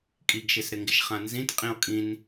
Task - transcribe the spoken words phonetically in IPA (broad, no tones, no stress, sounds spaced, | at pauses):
kʼ i ɡ ʃ e s ɾ ɪ ŋ ɡ ɪ ʃ χ ã n z ĩ t qʼ ĩ o̯ kʼ ĩ n